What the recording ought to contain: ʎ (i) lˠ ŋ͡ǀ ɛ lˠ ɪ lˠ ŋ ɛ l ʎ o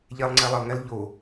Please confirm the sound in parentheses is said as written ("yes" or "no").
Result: no